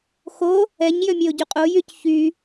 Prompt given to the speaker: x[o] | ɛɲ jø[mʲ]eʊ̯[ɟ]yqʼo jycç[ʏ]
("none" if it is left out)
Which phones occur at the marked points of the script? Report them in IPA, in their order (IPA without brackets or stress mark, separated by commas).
o, mʲ, ɟ, y